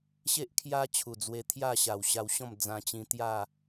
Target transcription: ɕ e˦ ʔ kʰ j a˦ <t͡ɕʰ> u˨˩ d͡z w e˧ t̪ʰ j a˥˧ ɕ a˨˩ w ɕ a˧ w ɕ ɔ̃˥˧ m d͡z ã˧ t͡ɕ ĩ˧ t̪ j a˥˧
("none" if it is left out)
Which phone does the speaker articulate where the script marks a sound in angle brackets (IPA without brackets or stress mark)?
t͡ɕʰ